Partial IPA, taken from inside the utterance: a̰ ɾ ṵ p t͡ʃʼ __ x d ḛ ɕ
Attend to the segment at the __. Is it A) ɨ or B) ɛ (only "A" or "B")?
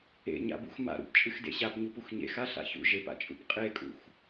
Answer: A